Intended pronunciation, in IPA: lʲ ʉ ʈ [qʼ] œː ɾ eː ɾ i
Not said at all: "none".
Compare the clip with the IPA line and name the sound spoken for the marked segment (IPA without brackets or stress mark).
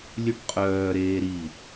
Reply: qʼ